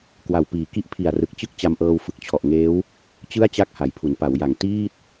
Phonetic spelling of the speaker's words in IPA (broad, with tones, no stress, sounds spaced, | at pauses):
k w a˨˩ w p iː˨˩ k i˥˩ ʔ pʰ i˨˩ a̯ r ɯ˨˩ k̚ t͡ɕ ɯ˥˩ k̚ t͡ɕ a˧ m ʔ ɤː˧ w f ɯ˨˩ k̚ t͡ɕʰ ɔ˨˩ ʔ ŋ eː˦˥ w | t͡ɕ ɯ˥˩ a̯ t͡ɕ a˥˩ k̚ h a˨˩ j pʰ u˩˦ n p a˩˦ w j a˨˩ ŋ t iː˥˩ t̚